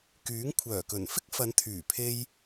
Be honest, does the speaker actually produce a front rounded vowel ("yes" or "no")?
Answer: yes